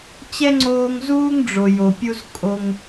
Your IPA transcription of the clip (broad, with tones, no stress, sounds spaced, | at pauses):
t͡ɕ ɛ˥ ŋ͡ǀ oː˦ ŋ z uː˥ ŋ ɖ͡ʐ o˨ j o˨ pʲ u˥ z kʼ o˦ ŋ